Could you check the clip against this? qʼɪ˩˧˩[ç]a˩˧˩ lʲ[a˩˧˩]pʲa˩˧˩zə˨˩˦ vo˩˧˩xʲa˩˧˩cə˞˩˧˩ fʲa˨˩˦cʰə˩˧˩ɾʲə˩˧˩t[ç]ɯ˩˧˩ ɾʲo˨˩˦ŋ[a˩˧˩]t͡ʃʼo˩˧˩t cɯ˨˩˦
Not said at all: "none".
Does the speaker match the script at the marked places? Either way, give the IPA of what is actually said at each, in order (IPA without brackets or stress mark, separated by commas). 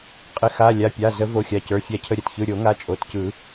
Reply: x, a˩˧˩, ç, a˩˧˩